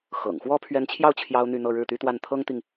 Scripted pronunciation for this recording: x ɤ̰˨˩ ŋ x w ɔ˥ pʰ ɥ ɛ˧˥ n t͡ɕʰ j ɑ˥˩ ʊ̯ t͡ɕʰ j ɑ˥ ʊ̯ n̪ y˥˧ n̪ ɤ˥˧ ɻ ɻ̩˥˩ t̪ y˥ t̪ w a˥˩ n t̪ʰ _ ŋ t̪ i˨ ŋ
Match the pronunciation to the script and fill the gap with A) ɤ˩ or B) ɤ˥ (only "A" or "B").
B